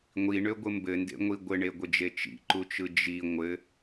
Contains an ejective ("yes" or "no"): no